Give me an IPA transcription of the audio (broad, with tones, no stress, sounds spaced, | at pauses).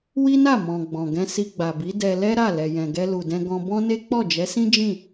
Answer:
w i˦ n a˦˨ m ɔ̃˨ ɡ͡b ɔ̃˨ ɡ ɛ̃˧ s i˧ ɡ͡b a˨ b i˨˦ d ɛ˧ l ɛ˦ ɾ a˦˨ l ɛ˨ j ɛ̃˨ ɡ ɛ˧ l u˨ d ɛ̃˧ ɡ ɔ̃˧ b ɔ̃˦ n e˦ k͡p ɔ˦˨ d͡ʒ ɛ˨˦ s ĩ˦ d͡ʒ ĩ˦˨